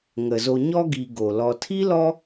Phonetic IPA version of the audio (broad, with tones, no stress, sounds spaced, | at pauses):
ŋ ə˩ z o˨ ɲ ɔ˦ ɡ i˨ ɡ o˩ l ɔ˨ tʰ i˥ l ɔ˦